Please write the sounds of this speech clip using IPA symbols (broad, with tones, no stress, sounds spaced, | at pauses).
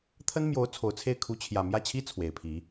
t̪ʰ ə˥ n m j o˧˥ ʊ̯ t͡sʰ o˨˩ ʊ̯ t͡sʰ e˥˩ ɪ̯ kʰ u˧˥ t͡ɕʰ j ä˨˩ m j ä˥˩ t͡ɕʰ i˥ t͡sʰ w e˨˩ ɪ̯ pʰ i˧˥